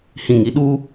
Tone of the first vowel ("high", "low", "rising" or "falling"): low